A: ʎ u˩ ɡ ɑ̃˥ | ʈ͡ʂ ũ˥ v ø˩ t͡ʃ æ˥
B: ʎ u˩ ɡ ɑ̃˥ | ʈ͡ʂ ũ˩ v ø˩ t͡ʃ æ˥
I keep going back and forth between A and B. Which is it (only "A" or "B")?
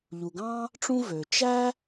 A